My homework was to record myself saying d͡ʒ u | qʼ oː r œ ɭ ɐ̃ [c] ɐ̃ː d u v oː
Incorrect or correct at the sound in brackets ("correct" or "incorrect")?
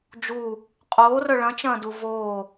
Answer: incorrect